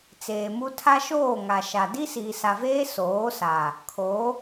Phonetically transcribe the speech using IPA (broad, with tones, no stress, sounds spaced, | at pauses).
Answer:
t͡s eː˨ m u˦ tʰ a˦ ʃ oː˦˨ ŋ a˨ ʃ a˨ d i˦ s iː˨ s a˨ v eː˦ s oː˨˦ s a˨ | kʰ o˨˦